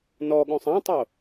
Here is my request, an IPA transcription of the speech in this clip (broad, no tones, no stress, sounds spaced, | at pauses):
n ɔ ɠ õ sˤ ã tˤ o